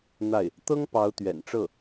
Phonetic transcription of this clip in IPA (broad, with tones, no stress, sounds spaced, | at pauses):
n̪ a˥˩ ɪ̯ | t̪ ɤ˥ ŋ p ɑ˧˥ ʊ̯ t̪ ɥ ɛ̰˨˩ n ʈ͡ʂ ɤ˥˩